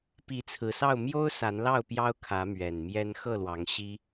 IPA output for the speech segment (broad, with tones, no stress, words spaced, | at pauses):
pi˨˦t͡sʰɹ̩˨˩sɑ˥˨ʊ̯ mjo˦ʊ̯ sa˨˦nlɑ˥˨ʊ̯pjɑ˦ʊ̯ kʰä˨˦mɥɛ˨˩n mjɛ˦n xɤ˥˨lwɑ˨˦ŋ ɕi˦